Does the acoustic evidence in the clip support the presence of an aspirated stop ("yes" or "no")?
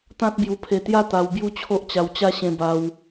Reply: yes